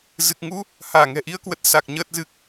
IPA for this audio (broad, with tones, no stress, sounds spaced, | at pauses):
z ɨ˨˩ k̚ ŋ u˧ | h aː˧˩ ŋ ɛ̤˨˩ ʔ i˧ ə̯ k w ə˨˩ t̚ s a˨˩ k̚ ɲ əː˨˩ t̚ z ɨ˨˩ k̚